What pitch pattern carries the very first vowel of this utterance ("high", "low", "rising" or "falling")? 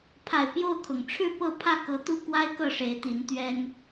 low